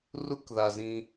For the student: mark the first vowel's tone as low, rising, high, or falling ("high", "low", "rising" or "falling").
high